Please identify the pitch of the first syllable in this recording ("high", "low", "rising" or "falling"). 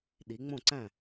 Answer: rising